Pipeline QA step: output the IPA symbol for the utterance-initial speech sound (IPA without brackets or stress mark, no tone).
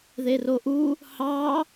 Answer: ð